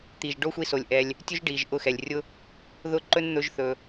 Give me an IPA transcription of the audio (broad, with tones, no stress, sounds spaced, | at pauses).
t̪ i˨ ʒ ɖ o˦ xʷ i˧ s o˨ lʲ ʔ ɛ˦ lʲ | tʲ ɵ˦ ʒ ɖ i˨ ʒ ʔ ʊ˧ x ɛ˨ lʲ rʲ ʊ˦ | ð ʊ˦˨ ǃ ɵ˦ n n̪ ɵ˦ ʒ θ ɵ˧